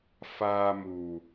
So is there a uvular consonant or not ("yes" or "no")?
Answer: no